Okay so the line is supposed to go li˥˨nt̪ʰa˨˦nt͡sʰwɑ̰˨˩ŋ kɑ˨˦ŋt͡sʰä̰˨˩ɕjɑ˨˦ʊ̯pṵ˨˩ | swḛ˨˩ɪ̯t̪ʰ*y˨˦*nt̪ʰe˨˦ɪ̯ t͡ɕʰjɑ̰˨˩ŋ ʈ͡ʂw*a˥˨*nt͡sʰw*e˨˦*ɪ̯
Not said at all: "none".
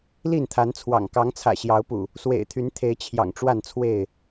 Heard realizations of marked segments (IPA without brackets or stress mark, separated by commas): y˨˦, a˥˨, e˥˨